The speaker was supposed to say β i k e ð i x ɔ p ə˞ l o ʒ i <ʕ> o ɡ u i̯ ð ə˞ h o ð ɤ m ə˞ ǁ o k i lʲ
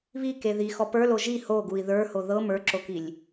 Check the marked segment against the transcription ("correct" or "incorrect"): incorrect